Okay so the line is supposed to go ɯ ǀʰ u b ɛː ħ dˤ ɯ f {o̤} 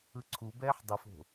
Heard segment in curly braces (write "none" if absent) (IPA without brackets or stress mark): o̤